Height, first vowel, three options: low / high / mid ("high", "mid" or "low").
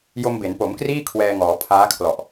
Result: mid